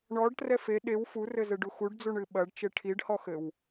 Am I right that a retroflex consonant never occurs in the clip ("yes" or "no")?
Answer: no